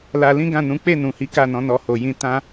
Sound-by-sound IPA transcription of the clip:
l a˧ l ĩ˦ ɡ ã˦˨ n ũ˨˦ k͡p e˦˨ n ũ˨ h i˨˦ k a˦˨ n ɔ̃˨˦ n ɔ˧ h o˨ j ĩ˧ t ã˦

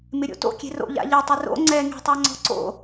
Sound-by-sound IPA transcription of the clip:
m ɪ ɾʲ o̰ t o̰ kʲ e̤ r o̰ ʎ a̰ ʎ e tˤ ʊ r o̰ ŋ͡ǀ ɛ ŋ e̤ tˤ a ŋ͡ǀ ɔ̤ ǀ o̰

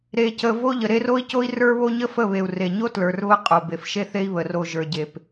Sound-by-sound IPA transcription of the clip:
ɾ e˨ c ə˨ v o˦ ʎ ə˨ ɾ e˦ r o˦ i̯ c o˦ i̯ r ə˞˦ β o˦ ɲ ə˦ f ə˦˨ β e˨ u̯ r e˨ ɲ o˦ t l ə˞˨ r β ə˦˨ qʼ o˨ b e˨ f ʃ e˦ θ e˦ i̯ β ə˨ r o˨ ʒ ə˞˨ ɟ e˨ p

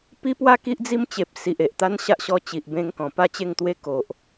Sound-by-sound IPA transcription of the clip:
p i˦ p w a˦ k i˦ ʔ d͡z i˦ m t͡ɕ e˨ p̚ s i˨ ʔ e˨ ʔ t̪ a˦ n ɕ a˦ ʔ ɕ ɔ˧ t͡ɕ i˨ ʔ b ẽ˧ ŋ k ɔ̃˨˩ p a˥˧ t͡ɕ e˥˧ ŋ t̪ w e˦ k o˨ ʔ

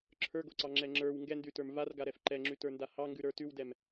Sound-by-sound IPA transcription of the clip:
ǁʰ ə˞ ɡ o ǀ ɑ ŋ͡ǁ ɛ ŋ͡ǁ ə˞ w ŋ ɡ ɛ n d ʉ t ə˞ m v a r ɡ a ɾ ɛ f ǃ ɛ ŋ͡ǁ ʉ t ə˞ n d a h ɑ ŋ ɡ ʉ ɾ ə˞ t ʉ w d ɛ m

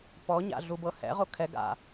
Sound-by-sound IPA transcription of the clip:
p ɔ ɲ a̰ ɮ u b ɤ h ɛ̰ ʁ o kʰ ɛ ɡ a̰

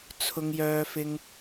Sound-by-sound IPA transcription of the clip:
t͡sʰ ʊ˧ ŋ j œː˧ f ɪ˧ ŋ

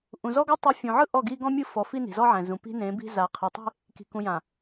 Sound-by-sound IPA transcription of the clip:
ʔ ũ˨ z ɔ˦ ɡ a˦ tˤ i˨˦ fʲ ũ˨ ʕ ɯ˦ ʔ ɔ˦˨ ɡ i˦ ɡ ɔ̃˦ mʲ ɯ˦ f ɔ˨ f i˦ n i̤˨ z ɔ˦ ʕ ɛ̃˨ z ũ˨ p i̤˦ n ẽ˨˦ b i̤˦ z a˨ qʰ ɛ˨ tˤ e̤˦ | k i̤˨ k ũ˨ j ã˨

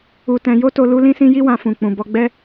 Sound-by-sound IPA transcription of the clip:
u˧ t ɛ̃˧ j o˦ t o˧ l u˦ l ĩ˦ s ĩ˦ j i˦ w ã˧ f ũ˨ k͡p ũ˨ b ɔ˧ ɡ͡b ɛ˦

